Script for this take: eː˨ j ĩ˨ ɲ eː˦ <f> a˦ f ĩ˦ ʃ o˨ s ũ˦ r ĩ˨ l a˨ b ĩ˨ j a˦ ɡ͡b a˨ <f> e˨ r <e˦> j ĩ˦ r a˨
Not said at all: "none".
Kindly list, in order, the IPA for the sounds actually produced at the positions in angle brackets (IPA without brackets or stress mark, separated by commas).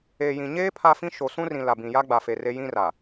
pʰ, f, e˦